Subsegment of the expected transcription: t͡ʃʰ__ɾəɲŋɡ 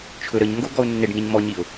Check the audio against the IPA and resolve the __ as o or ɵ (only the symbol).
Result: ɵ